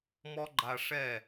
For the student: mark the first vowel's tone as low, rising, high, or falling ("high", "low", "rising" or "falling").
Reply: high